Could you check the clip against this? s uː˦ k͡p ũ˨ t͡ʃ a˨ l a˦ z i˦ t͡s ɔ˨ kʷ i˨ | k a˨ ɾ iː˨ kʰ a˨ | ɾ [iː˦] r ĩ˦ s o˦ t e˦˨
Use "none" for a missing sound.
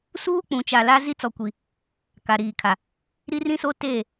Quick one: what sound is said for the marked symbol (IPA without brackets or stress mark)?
i˦